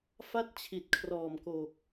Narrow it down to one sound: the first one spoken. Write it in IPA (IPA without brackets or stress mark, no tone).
f